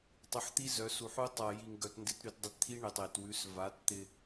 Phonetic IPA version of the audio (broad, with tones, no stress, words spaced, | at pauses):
tˤʉ˨ħt̪i˦zœ˨˦su˨ ħu˦tˤa˧ ji˧ŋɡœ˧tndɪ˦t ɾʉ˧tdˤɪ˧tt̪ʰi˦ ɳe˨tˤe˨twʉ˨˦s va˨˦tt̪ɪ˧